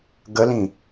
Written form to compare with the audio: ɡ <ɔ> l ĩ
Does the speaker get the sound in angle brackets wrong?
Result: yes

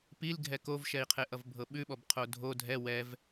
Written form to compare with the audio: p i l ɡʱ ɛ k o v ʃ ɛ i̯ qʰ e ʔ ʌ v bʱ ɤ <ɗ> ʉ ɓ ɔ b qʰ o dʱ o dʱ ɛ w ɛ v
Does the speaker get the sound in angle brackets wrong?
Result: yes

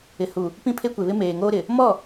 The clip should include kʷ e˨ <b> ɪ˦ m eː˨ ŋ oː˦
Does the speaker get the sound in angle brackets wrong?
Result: yes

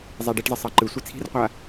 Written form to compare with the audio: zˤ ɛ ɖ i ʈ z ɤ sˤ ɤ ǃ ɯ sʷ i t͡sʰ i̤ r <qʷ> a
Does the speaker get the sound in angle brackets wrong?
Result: no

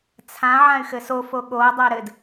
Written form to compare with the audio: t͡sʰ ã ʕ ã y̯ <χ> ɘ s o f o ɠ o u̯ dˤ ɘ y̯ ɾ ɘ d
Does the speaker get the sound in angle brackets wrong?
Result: yes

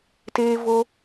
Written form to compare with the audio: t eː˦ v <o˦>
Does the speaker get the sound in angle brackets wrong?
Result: no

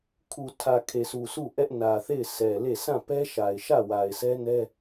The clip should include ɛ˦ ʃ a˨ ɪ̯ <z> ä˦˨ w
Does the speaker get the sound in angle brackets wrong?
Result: yes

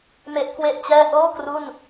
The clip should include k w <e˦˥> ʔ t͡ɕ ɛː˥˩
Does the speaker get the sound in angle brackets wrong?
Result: yes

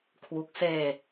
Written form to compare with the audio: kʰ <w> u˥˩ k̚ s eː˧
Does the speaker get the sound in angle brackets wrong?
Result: no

